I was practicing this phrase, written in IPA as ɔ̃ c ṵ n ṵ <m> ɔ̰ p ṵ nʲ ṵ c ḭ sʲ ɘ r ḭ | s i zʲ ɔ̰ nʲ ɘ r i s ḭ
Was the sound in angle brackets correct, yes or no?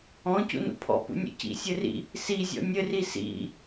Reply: no